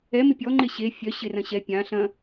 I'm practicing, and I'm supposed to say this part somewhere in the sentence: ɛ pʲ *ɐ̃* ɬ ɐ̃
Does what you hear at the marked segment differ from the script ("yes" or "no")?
yes